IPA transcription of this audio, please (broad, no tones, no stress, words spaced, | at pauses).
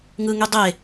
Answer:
ŋɯŋy dˤe